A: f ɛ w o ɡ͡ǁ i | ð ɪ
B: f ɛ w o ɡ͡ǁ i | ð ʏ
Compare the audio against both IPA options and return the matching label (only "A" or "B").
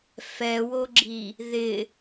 A